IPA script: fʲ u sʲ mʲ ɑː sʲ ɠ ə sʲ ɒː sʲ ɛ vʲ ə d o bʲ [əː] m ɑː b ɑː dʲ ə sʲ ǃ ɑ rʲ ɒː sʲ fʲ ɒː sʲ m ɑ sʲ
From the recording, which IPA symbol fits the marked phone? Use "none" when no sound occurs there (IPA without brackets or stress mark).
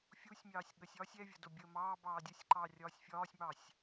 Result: əː